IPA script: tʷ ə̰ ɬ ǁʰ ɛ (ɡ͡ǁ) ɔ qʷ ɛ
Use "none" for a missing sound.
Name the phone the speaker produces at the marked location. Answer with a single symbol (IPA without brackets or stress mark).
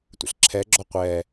ɡ͡ǁ